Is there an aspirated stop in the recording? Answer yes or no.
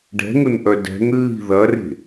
no